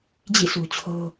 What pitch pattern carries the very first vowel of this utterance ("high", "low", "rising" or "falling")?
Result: falling